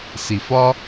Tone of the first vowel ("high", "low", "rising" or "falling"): low